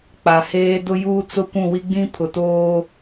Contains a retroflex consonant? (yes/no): no